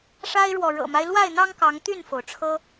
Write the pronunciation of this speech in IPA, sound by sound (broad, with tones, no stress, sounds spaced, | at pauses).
ʂ a˦ ɪ̯ ɻ w ɔ˨ ɻ ɤ̰˨˩ m a˦ ɪ̯ l w a˥˨ ɪ̯ n̪ ɑ˦ ŋ k ɑ˨˦ ŋ t̪ y˥˨ n f o˩ ʊ̯ ʈ͡ʂʰ ɤ˦